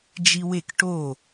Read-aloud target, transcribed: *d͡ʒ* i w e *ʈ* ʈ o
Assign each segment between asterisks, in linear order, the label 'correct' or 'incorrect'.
correct, incorrect: k

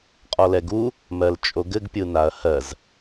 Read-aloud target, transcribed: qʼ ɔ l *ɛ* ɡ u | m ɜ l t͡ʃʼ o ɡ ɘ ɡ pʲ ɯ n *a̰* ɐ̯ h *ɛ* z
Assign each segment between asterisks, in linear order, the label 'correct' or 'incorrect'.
correct, incorrect: a, incorrect: ɜ

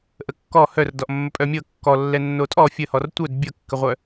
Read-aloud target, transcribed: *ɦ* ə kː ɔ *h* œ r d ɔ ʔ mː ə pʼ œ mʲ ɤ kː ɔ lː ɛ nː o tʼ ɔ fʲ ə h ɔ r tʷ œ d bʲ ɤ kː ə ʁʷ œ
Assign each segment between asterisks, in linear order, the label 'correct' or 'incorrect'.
incorrect: ʔ, correct

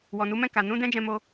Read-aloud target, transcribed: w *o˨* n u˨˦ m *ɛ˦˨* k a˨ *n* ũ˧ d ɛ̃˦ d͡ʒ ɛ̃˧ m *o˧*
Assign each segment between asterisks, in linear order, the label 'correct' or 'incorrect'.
incorrect: ɔ˨, incorrect: ɛ̃˦˨, correct, correct

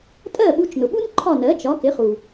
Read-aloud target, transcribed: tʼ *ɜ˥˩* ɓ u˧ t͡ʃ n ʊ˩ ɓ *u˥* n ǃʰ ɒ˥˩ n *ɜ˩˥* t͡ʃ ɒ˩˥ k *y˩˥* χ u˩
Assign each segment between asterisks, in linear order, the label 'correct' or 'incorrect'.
correct, correct, correct, incorrect: ɪ˩˥

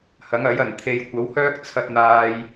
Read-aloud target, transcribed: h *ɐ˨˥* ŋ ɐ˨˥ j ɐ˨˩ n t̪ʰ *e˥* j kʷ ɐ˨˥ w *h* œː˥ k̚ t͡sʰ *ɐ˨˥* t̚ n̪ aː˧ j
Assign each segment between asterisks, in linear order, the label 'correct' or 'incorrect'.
correct, incorrect: e˨, correct, incorrect: ɐ˧

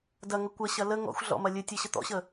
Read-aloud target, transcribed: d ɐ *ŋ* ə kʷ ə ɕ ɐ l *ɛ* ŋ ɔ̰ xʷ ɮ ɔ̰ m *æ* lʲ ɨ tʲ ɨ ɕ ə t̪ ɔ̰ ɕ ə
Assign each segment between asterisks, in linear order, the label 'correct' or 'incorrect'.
correct, incorrect: ə, incorrect: ɐ

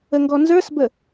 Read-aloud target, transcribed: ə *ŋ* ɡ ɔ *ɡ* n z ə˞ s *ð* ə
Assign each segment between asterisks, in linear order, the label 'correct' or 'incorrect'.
correct, incorrect: none, incorrect: b

